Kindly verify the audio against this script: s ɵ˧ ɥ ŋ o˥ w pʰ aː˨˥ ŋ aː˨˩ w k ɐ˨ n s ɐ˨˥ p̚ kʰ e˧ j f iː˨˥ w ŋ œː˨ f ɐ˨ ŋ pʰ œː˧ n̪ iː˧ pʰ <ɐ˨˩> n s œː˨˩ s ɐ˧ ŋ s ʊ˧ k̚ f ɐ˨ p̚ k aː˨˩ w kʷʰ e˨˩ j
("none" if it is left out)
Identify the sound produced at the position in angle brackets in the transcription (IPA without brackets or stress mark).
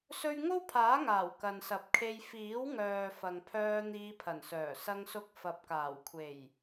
ɐ˨˩